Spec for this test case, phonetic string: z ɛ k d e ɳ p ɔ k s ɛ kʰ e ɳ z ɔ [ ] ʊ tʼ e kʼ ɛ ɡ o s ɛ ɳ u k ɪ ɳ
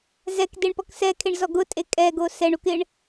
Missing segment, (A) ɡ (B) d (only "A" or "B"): A